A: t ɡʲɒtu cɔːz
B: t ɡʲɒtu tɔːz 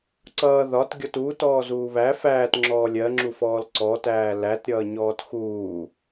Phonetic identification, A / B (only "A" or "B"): B